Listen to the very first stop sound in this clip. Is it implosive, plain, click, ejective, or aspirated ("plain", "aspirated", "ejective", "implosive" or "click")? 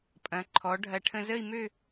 ejective